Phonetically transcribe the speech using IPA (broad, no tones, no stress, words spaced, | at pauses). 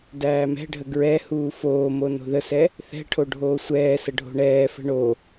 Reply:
dæːmɛ̤ɖʱə ɡɹɛ huːfoːmo no̤ðəsɛ | θɛ̤ʈʰo ɖʱoːsʷɛːsə ɖʱo̤ɳɛːfə̤ ɳo